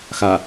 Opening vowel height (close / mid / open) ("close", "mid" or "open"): open